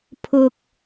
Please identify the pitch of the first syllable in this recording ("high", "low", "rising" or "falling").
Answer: low